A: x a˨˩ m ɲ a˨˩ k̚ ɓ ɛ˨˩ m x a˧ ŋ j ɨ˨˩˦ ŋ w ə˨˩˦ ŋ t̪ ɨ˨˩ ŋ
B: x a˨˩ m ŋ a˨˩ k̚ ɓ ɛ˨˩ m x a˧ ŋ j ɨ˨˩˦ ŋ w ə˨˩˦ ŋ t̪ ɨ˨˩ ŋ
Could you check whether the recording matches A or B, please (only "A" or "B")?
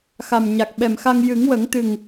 A